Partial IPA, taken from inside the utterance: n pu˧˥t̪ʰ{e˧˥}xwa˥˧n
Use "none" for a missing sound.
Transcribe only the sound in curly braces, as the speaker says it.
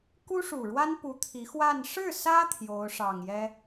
i˧˥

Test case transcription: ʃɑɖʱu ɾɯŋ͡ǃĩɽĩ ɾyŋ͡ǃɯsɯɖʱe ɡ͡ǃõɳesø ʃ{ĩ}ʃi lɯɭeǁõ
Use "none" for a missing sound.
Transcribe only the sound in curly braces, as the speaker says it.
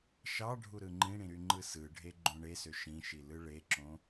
ĩ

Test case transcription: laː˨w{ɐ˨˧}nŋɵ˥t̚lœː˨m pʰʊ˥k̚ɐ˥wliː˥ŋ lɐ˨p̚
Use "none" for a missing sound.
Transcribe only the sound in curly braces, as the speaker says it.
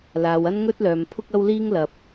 ɐ˥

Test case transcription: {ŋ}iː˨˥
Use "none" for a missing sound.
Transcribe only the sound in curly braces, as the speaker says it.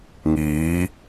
ŋ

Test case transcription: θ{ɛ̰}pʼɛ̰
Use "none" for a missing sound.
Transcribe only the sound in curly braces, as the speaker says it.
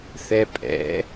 ɛ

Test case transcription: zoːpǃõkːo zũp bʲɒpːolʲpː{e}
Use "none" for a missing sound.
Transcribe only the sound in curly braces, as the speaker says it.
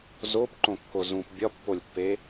e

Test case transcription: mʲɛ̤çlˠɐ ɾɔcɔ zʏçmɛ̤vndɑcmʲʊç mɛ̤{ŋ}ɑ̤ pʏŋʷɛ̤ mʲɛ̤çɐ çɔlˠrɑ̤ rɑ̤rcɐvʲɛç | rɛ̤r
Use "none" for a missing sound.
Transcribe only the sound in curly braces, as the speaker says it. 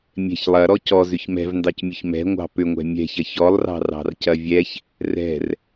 ŋʷ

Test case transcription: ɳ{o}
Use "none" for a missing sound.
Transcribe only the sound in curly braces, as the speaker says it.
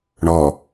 ɔ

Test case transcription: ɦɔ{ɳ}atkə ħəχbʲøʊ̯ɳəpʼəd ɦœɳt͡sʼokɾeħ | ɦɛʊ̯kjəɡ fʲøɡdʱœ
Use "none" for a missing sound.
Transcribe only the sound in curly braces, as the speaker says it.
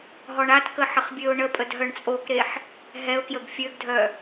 ɳ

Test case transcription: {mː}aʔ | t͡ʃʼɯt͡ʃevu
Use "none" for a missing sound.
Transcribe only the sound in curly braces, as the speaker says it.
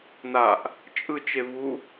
n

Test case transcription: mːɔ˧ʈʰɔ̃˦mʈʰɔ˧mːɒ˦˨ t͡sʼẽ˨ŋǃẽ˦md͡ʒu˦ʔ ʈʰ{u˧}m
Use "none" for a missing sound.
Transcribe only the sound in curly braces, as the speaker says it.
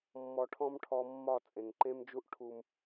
u˧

